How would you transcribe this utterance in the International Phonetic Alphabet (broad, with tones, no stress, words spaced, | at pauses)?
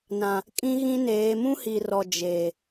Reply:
nã˨ | kʼĩ˦ɣĩ˦neː˨˦ mũ˦hi˨rɔ˨ d͡ʒeː˨